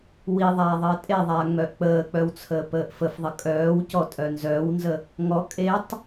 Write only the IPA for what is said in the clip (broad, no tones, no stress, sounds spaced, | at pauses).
w i ðˤ aː ðˤ əː tʼ e ðˤ aː ŋ͡m œ ʔ k͡p əː k͡p œ w t͡sʰ əː p əː ʔ f ə f ðˤ ə kʼ œː w c ɔ tʼ œ n z œː w n z ə | ŋ ɔ kʼ e tˤ